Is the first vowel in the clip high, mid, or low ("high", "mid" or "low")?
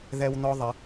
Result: mid